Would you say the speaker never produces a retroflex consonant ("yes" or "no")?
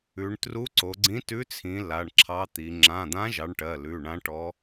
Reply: no